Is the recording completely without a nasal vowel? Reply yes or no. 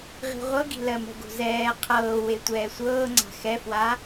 yes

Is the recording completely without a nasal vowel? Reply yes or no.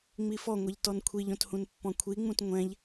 no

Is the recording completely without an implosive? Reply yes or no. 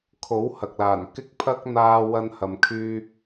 yes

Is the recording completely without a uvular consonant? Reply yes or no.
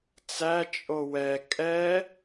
yes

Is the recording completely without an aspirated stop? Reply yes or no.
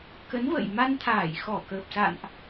no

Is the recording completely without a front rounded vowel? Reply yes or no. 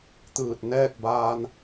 yes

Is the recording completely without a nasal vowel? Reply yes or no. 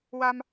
yes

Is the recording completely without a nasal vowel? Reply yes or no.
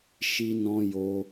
no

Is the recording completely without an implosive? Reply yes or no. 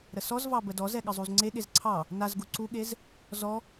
no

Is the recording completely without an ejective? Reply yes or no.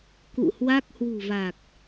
yes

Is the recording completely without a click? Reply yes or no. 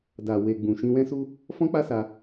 yes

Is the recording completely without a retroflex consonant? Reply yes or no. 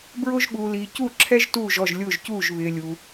yes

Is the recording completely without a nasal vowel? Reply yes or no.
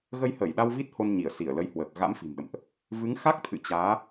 yes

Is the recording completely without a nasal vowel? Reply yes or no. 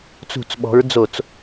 yes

